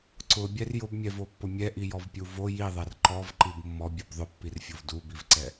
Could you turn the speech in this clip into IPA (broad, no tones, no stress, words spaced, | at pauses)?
ǀʊbʲɛr jʊbmʲɛvopːʊ mʲɛʔijɔvpʲu vo jiðˤɛr ǃɔvǃib mːɔbʲub ðˤʊpːirfʲov dubivǀɛ